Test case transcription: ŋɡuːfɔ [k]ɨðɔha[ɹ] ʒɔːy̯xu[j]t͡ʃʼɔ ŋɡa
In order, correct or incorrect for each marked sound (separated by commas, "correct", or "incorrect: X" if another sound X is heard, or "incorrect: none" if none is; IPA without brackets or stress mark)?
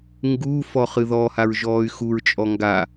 incorrect: χ, correct, incorrect: ɹ